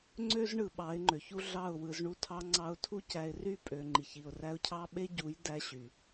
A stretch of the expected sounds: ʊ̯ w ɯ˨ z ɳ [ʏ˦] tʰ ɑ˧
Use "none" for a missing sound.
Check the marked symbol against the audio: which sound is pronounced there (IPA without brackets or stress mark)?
u˦